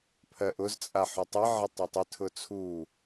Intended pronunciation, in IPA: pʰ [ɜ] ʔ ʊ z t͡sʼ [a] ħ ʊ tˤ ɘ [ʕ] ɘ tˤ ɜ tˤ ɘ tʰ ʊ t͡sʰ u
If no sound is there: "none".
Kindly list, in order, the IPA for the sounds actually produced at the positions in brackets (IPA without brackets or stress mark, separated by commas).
ɜ, a, ʕ